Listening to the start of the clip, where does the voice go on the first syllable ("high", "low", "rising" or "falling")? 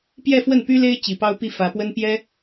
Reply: falling